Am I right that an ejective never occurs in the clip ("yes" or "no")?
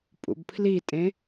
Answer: no